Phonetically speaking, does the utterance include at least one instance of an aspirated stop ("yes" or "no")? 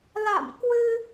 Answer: no